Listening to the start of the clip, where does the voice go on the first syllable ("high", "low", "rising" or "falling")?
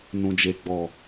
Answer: low